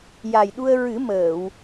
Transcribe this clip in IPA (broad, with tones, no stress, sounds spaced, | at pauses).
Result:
j a˨˩ j ɗ u˧ ə̯ ɹ ɨ˨˩˦ m əː˨˩˨ w